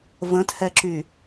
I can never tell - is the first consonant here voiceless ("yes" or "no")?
no